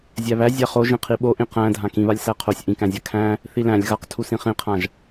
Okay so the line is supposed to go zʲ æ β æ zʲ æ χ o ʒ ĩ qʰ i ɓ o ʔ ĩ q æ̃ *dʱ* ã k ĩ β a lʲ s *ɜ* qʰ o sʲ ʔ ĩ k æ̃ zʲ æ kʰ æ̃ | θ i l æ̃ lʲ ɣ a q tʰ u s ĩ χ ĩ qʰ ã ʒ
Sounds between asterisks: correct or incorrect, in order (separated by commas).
correct, incorrect